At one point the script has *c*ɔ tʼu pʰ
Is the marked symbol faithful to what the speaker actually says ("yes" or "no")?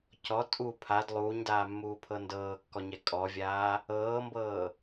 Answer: yes